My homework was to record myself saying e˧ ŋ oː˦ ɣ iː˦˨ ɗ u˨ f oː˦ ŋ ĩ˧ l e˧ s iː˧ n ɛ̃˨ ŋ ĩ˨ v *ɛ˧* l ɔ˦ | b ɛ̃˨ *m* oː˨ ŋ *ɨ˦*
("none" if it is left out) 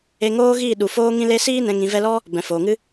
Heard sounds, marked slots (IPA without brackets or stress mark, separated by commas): ɛ˧, f, ɨ˦